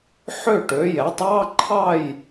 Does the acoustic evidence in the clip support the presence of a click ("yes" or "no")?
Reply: yes